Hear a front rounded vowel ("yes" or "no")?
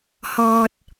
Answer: no